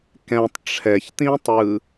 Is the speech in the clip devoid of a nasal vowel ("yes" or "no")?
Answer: no